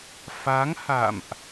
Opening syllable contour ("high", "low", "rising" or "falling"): rising